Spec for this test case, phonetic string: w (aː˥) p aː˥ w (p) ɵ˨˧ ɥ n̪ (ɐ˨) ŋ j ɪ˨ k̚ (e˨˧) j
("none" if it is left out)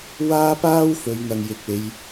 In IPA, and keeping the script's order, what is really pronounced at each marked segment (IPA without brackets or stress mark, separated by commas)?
aː˥, f, ɐ˨, e˨˧